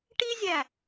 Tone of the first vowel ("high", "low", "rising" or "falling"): high